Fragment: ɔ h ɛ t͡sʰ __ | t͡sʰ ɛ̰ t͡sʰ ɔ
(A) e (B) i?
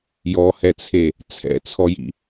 A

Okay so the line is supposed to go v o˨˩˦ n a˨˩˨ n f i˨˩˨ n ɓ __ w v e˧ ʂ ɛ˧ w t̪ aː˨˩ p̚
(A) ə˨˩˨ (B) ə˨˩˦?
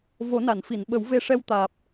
B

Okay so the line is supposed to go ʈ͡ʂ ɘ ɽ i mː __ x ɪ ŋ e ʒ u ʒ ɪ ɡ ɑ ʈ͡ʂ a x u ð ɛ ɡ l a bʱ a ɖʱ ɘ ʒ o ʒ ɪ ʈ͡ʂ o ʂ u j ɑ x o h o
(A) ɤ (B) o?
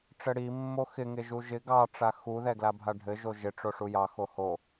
B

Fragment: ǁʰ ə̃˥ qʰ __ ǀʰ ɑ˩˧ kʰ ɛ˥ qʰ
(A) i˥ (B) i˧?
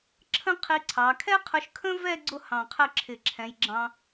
B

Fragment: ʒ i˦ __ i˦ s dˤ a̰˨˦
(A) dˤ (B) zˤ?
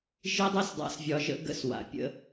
A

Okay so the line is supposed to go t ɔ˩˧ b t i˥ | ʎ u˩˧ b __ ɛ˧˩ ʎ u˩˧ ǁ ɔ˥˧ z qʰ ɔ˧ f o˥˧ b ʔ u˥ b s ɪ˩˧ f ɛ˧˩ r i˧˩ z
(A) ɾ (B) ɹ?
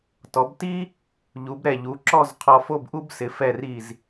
A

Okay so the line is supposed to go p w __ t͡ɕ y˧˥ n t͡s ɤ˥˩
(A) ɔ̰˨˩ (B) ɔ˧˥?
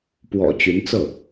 A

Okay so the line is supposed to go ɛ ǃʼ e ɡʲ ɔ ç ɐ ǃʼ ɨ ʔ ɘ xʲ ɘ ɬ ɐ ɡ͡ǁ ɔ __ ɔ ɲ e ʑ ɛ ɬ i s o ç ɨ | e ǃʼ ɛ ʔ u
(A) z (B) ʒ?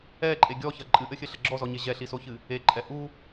A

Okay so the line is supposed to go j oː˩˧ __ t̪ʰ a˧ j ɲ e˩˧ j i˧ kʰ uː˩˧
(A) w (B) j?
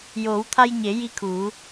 A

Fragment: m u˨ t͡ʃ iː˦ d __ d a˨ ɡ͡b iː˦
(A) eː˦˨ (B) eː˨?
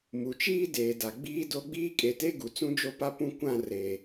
B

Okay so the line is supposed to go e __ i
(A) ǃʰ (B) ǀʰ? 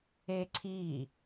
B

